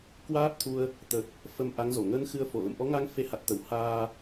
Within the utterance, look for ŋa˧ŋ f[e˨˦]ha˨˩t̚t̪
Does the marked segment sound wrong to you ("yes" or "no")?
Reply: no